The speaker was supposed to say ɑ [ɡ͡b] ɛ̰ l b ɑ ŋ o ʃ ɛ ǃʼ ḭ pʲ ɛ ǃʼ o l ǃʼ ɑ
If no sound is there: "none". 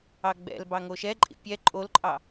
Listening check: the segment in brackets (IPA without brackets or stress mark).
ɡ͡b